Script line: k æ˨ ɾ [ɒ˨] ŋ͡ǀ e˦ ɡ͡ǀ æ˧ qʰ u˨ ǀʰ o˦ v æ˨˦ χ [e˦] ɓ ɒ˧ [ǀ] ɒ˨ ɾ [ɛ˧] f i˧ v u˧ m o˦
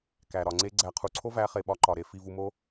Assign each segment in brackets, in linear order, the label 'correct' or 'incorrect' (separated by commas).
correct, incorrect, incorrect, incorrect